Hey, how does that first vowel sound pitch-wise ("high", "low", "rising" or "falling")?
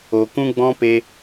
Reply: low